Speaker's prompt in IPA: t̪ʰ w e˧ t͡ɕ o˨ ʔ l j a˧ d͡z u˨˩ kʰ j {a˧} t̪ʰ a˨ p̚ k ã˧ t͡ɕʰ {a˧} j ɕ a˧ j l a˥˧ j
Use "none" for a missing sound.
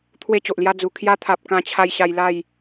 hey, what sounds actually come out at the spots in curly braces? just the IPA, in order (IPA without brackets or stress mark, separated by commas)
a˧, a˧